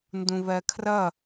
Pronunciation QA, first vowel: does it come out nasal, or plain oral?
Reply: nasal